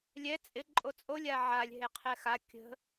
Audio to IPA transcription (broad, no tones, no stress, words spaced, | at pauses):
lʲɛ t͡sʼɪ ǃʼot͡sʼolʲ aʕalʲ ɦeqʰɛxa kʲə̤